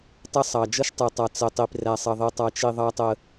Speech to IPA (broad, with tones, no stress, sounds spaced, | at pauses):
tˤ ə˦ sˤ ɑ˨ d͡ʒ ʌ˦ ʃ tˤ ə˞˨ tˤ ɑ˨ t͡s ə˨ tˤ i˨ p r æ˦ sˤ ʌ˦ ðˤ i˦ tˤ ɑ˦ t͡ʃ i˦ ðˤ ɑ˦ tˤ ə˦